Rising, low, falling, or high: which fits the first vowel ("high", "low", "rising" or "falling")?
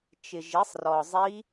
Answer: low